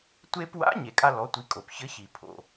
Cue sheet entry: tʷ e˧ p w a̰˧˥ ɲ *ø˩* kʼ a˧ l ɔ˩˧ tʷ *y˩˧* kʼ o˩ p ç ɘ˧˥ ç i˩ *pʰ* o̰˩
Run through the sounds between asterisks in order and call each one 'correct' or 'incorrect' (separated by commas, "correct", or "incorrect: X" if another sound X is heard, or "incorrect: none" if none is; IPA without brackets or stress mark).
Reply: incorrect: e˩, incorrect: i˩˧, correct